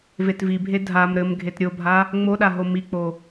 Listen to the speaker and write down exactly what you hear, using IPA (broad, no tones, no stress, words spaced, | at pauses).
vetvibʱe dʱam ɾɘm ɡʱetɾʲobʱa | ŋ͡moɗa ɦomik͡po